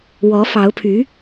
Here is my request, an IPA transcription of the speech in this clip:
wɔ˧˥fɑ˧˥ʊ̯pʰy˧˥

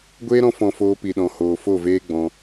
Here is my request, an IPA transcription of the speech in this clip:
ɡʷeː˦ɾɔ̃˧ fɔ̃˨ foː˧pi˨ɗɔ̃˨ hoː˨fo˦˨veː˦ ɡ͡bɔ̃˧

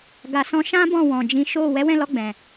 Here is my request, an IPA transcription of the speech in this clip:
ɡa˨sɔ̃˧ʃã˦ bɔ̃˦˨wɔ̃˨d͡ʒĩ˨˦ʃo˦˨ wɛ˨˦wɛ̃˦˨lɔ˧ ɡ͡bɛ̃˨

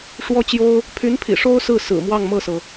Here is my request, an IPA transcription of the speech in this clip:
ʂwɔ˥t͡ɕjo˥ʊ̯ | pʰy˧˥npʰḭ˨˩ʂo˥ʊ̯ sɹ̩˥˩ sɹ̩˨˩mwɑ˥˧ŋmɤ˥˩sɤ˩

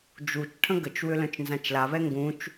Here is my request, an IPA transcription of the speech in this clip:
d͡ʒut͡ʃʈʰə̃ ɡət͡ʃwʏ lœ̃t͡ʃnzãt͡ʃlaβɛ ŋɡũt͡ʃ

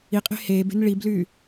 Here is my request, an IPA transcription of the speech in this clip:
iqʼe̤ heːbe̤n ɭiblyː

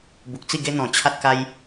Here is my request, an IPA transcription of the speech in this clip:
bu˨k̚t͡si˥˧ɡe˦n̪ɔ̃˨˩ t͡ɕʰa˦t̚ka˦j

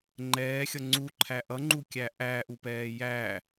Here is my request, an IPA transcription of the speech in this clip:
ŋ͡ǃɛːxʲʌ ŋ͡ǀuǃʰæ ʔʌŋ͡ǃukʲæ ʔæʔupɛː jæ

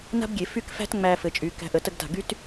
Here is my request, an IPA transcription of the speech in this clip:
na̤˥bɡʲe˩˧ fy˥˧kfæ̤˥t ŋ͡mæ˧fɘ˩˧t͡ʃʼy˩˧ kæ̤˧ʔə˩˧tə˥˧ɡta̤˧˩ ɡy˥t

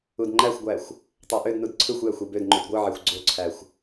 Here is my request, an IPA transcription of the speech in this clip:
udŋ͡ǃæxʷɡʷæxʷ | tˤæʔødnud ǀʰɯxʷjæxʷ ybødŋ͡ǃyd ɡʷɯʕæxʷ ɡ͡ǀoǀʰæxʷ

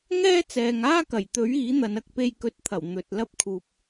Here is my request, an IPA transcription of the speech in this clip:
ŋɛː˥t͡sɛː˨ŋaː˥kɐ˨˩j t̪ɵ˨˥ɥ iː˨˥n̪ɐ˨˧nɐ˨k̚ pe˧jkɵ˨t̚t̪ʰɐ˨˩w n̪ɵ˨t̚lɐ˥p̚ kʰuː˨p̚

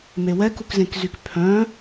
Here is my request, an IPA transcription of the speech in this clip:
mewɛk ukzẽkzykpʰœ̃

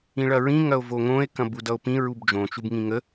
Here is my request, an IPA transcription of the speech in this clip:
ĩɭɐɹĩ ŋɐo̯voŋõe̯ kɐ̃budʌo̯pĩ ɹubd͡ʒõ t͡ʃubŋĩŋə

